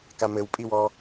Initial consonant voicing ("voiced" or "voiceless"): voiceless